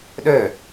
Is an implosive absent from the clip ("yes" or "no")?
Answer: no